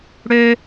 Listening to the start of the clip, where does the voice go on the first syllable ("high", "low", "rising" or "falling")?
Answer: high